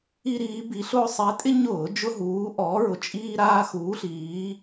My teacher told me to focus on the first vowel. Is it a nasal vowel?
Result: no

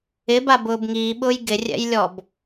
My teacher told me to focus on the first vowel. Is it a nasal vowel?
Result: no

